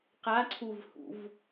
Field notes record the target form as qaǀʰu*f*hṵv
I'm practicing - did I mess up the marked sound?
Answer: yes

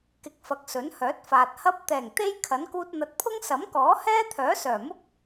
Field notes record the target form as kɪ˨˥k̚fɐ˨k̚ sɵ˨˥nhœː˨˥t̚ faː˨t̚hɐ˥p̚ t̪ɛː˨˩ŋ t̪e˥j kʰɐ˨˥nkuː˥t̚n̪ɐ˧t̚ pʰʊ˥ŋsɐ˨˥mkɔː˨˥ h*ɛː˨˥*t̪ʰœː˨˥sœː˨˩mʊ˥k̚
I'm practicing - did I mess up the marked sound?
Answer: yes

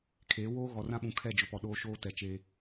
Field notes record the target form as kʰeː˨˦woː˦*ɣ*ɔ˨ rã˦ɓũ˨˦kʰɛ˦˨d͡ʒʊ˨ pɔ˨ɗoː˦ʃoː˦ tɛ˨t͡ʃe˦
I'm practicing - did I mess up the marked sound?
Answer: no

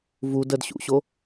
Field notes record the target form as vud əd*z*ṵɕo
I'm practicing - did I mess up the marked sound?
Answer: yes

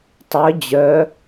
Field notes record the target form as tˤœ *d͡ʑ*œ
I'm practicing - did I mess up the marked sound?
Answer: no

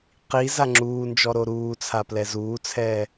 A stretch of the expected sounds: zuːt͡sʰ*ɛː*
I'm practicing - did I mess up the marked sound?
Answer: no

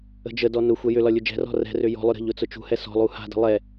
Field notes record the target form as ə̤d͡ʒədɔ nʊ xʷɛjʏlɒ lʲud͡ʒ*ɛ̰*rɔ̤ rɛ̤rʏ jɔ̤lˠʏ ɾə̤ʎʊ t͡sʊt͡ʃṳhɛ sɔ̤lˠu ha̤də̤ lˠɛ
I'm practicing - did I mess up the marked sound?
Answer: yes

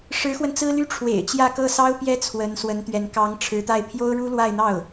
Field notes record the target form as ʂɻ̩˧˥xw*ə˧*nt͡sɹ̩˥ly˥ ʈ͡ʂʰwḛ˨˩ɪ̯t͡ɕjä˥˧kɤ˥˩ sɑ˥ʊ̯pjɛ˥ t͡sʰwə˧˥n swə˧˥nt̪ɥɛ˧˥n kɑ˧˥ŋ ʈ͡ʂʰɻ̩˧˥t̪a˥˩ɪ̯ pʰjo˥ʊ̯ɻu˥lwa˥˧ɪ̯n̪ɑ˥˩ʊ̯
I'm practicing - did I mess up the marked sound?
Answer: no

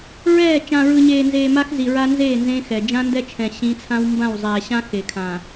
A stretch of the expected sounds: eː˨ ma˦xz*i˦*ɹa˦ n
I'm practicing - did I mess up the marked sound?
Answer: yes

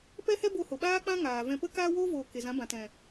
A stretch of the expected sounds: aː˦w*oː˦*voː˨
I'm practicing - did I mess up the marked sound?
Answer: no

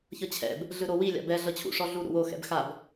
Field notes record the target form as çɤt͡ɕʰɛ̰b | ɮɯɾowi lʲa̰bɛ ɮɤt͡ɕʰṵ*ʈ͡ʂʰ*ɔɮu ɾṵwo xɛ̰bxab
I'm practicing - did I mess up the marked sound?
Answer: yes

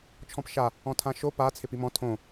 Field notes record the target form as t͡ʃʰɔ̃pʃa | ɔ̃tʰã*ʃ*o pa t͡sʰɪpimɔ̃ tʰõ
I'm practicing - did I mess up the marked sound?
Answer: no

